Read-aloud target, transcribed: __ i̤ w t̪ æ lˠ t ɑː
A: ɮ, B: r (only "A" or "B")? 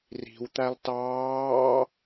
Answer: B